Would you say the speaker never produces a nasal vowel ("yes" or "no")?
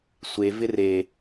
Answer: yes